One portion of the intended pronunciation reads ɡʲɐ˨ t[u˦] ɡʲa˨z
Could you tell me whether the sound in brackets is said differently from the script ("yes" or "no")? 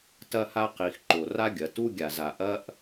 no